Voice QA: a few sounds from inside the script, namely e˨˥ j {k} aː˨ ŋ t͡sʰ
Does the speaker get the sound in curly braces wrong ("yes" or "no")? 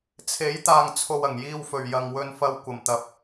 yes